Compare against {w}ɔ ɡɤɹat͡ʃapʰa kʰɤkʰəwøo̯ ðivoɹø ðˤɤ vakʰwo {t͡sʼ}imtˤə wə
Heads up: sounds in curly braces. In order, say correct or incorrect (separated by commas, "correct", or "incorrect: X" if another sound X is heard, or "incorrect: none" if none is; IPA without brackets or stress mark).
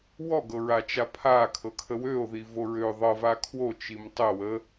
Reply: correct, incorrect: t͡ʃ